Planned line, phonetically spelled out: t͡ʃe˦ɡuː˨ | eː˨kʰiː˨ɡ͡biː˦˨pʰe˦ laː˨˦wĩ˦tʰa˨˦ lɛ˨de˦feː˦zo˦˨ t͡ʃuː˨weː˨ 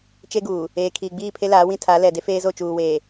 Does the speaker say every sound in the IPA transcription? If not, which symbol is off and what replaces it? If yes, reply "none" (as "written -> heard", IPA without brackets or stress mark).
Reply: none